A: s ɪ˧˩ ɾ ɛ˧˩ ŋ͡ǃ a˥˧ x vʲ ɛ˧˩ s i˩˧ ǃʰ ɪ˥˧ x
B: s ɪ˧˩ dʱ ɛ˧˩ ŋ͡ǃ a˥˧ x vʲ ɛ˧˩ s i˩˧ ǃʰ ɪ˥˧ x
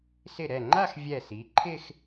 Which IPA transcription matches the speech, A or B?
A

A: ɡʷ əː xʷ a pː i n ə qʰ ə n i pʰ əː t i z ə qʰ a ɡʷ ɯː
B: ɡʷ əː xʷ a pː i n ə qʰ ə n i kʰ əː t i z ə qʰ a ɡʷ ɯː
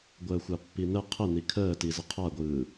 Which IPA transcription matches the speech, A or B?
B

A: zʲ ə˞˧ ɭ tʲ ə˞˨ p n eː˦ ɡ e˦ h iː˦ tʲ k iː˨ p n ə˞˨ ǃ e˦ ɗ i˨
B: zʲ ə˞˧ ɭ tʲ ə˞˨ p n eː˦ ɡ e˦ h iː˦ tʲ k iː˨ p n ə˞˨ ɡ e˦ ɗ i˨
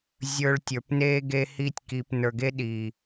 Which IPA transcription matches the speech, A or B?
B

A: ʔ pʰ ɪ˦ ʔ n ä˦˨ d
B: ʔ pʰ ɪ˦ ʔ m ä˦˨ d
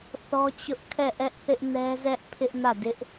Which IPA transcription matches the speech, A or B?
A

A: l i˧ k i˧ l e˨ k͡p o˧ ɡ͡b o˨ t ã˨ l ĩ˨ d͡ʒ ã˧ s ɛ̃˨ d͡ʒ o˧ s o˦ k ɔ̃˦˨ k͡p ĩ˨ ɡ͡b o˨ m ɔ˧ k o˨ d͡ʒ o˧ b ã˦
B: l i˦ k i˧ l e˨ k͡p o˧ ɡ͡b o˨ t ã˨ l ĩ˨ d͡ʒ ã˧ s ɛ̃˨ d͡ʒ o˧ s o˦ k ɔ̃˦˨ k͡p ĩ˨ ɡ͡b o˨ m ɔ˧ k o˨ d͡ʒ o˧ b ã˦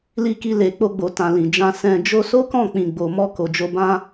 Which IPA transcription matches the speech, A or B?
A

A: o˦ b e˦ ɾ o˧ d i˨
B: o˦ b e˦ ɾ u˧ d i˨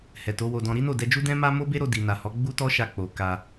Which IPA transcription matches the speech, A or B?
A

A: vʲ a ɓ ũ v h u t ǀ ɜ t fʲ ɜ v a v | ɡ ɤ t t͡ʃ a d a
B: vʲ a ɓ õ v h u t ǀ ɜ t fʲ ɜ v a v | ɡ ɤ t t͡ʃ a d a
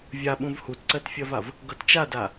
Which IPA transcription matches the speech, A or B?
A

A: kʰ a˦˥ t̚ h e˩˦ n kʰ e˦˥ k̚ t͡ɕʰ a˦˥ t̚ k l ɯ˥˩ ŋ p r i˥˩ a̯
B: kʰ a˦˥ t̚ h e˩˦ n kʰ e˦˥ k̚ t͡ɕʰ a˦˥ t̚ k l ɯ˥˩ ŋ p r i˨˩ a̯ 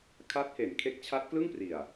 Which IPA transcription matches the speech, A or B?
B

